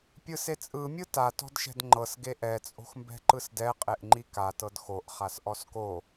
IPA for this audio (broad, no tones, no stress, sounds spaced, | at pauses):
pʲ ɯ s e t͡sʼ ɯ mʲ ɯ t a t ɔ̤ d ʃ ɛ̤ d ŋ͡ǃ ɤ s ɡ e ʔ ɛ t͡sʼ o̤ x m b ɛ̤ ǃ ɯ s d ɛ qʼ e ʔ ŋ͡ǃ i k a t ɤ d x o ʔ χ a s ʔ ɔ s k o